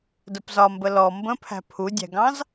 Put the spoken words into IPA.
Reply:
d ə p z ɒ m b ə l ɔ m b ə̃ pʰ æ̤ pʰ u dʲ æ̤ ɡ ɑ̃ z

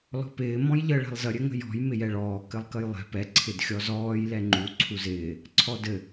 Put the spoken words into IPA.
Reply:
l ɔ̤ p ɪː m ɔ̃ j ʎ ə ɭ ɛ̤ lˠ z ə ɾʲ ɘ ŋ ə̤ j ɔ̤ j m ɪ j ɛ ɭ ɔː k ɘ lˠ k ə j lˠ ɛ̤ p ɛ ǀʰ ɪ d xʲ ɔ z ɔː j l ɛ ŋ͡ǃ u ǀʰ u z ɪː | ǀʰ ɔ d ɘ

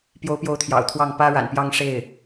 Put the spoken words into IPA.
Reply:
p j o˧˥ ʊ̯ p j o˧˥ ʊ̯ t̪ʰ j ɑ̰˨˩ ʊ̯ t̪ʰ w ɑ˥˩ ŋ p ä˥ ɻ a̰˨˩ n p j ɑ˥˧ ŋ ʂ e˥˩ ɪ̯

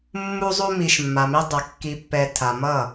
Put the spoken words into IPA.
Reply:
mː u˧ zˤ u˧ m i˨ ʃ mː a˨ m i˧ dˤ ɐ˨ kː i˨ pː ɛ˨ tʰ a˨ m ʌ˦˨

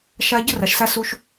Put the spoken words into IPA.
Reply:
ʃ a˦ ɟ ə˦ r a˨ ʃ s a˦ s u˦ ʃ

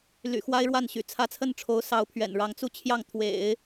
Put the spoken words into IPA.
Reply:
l y̰˨˩ x w a˥ ɪ̯ ɻ w a˥˩ n ɕ y̰˨˩ t͡sʰ ä˧˥ t͡sʰ ə˥˩ n ʈ͡ʂʰ o˧˥ ʊ̯ s ɑ˧˥ ʊ̯ pʰ ɥ ɛ̰˨˩ n ɻ ɑ˧˥ ŋ t͡s u˥˧ t͡ɕʰ j ɑ˥˩ ŋ t̪ʰ w ḛ˨˩˦ ɪ̯

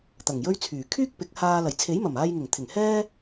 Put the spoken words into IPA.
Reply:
t̪ ɐ˨˩ ŋ j ɵ˥ ɥ t͡sʰ yː˨˩ kʰ yː˥ k̚ p ɪ˨˥ k̚ h aː˧ l ɐ˨˩ j t͡sʰ e˨˥ j m ɐ˨˩ m aː˧ j ŋ ɪ˨˩ ŋ t̪ʰ ɪ˨˩ ŋ h ɛː˥

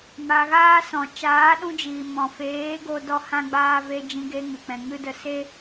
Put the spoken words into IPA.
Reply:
m a˧ ɣ aː˦ s ɔ̃˨ t͡ʃ aː˨˦ ɗ ũ˧ d͡ʒ iː˨ m ɔ̃˨ f eː˨˦ ɡ o˦ d ɔ˦ h ã˦ ɡ͡b aː˦ v e˧ d͡ʒ ĩ˧ ɡ e˧ ŋ ɨ˨ k͡p ɛ̃˨ ŋ ɨ˦ d ə˦˨ s e˦

